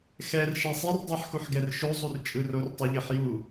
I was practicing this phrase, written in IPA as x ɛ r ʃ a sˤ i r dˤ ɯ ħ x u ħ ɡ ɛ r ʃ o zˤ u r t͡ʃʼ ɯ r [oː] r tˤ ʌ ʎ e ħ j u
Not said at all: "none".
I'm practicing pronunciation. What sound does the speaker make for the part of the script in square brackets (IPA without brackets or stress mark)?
o